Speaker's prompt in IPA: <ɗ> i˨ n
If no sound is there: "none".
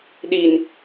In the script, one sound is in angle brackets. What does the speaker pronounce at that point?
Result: ɗ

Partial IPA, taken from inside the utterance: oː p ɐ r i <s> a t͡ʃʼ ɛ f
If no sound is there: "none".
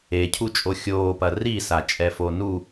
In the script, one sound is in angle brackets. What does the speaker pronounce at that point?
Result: s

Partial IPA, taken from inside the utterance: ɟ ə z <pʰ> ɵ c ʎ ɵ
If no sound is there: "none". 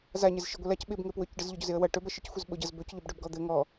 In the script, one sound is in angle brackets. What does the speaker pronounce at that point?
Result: b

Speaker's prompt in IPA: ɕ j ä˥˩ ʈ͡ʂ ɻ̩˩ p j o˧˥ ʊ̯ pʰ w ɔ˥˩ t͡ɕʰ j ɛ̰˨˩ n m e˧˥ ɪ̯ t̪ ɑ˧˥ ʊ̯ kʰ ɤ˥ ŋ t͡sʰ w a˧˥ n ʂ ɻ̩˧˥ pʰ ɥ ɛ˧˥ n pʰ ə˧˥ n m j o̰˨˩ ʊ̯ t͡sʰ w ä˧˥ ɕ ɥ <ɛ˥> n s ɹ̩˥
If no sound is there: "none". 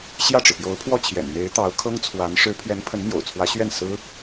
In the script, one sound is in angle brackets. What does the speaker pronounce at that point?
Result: ɛ˥˩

